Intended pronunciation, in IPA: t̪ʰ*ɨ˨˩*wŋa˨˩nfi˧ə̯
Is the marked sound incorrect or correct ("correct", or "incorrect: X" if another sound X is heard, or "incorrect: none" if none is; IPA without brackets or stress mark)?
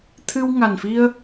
incorrect: ɨ˧